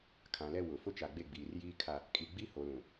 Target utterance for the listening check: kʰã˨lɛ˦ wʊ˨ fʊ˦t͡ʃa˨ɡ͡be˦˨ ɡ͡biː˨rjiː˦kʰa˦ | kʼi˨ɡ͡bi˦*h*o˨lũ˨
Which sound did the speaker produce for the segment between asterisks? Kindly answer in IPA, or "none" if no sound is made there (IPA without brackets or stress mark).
h